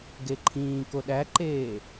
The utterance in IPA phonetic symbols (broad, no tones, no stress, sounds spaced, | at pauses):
ɡ e ǃʰ ĩː k o ɗ æ ǃ eː